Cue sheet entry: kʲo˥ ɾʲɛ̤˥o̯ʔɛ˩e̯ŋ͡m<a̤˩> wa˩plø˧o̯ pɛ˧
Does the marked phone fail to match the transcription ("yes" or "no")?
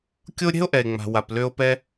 no